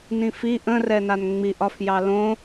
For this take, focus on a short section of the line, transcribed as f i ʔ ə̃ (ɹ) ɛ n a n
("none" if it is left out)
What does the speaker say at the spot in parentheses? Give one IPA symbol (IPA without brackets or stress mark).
r